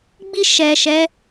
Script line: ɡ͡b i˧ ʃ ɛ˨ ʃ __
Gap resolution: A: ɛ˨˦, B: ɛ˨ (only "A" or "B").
A